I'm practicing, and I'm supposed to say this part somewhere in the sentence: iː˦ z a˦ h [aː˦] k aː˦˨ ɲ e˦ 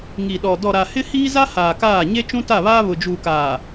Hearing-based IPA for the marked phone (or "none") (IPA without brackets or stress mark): aː˨